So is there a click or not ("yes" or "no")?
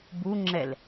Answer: yes